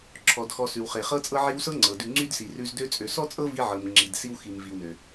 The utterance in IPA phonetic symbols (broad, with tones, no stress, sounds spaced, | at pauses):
ǁʰ ɔ˩ d x ɔ˨ s ʉ˩ w χ e˩ χ ɤ˦ t͡sʼ ɤ˦ ʕ i˦ w s ɤ˦ ŋ͡ǀ ɤ˩ d ʉ˨ ŋ͡ǀ y˥ d s i˨ r ʉ˦ z d ø˥ t͡sʼ ø˨ s ɔ˥ t͡sʼ ɤ˥ v i˦ ʕ ɤ˨ m ŋ͡ǁ i˨ d s i˦ w x i˨ m v i˨ w n ø˨